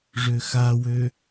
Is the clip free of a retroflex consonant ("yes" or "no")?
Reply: no